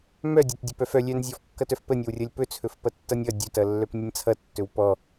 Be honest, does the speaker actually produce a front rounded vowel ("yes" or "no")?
yes